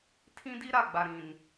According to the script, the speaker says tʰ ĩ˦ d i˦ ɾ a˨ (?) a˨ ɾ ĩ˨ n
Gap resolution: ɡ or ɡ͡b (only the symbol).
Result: ɡ͡b